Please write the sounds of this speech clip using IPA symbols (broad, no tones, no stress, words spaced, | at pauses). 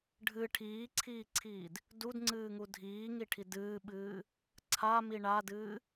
ɖʱɨ ʈʰiːǀʰiːǀʰiːd | dudŋ͡ǀɨːŋu dʱiːŋiʈʰi dɨːɓɨː | ǀʰami ɳadɨː